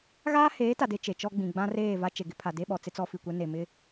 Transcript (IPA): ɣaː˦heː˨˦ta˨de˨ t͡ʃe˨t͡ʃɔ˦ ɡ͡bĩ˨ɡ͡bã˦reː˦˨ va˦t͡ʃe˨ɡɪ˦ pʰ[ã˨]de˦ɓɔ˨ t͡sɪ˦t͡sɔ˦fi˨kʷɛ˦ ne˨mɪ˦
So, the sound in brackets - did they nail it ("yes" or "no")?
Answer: no